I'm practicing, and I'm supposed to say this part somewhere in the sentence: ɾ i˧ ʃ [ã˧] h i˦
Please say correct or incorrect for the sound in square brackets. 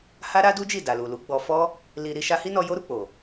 incorrect